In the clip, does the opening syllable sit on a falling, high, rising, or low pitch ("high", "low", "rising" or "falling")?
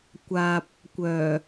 low